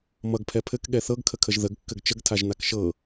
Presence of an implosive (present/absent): present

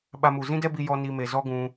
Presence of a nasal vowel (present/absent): present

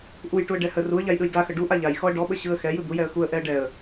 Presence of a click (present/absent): absent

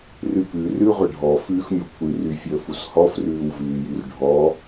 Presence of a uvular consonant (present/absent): present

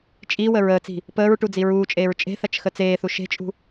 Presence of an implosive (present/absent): absent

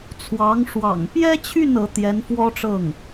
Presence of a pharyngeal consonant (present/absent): absent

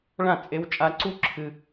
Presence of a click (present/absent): present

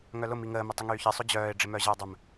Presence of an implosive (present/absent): absent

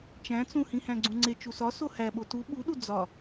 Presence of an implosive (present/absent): present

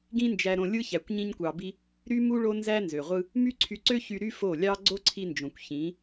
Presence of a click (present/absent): present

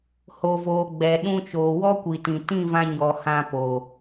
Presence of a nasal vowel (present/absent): present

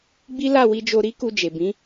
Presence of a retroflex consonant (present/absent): absent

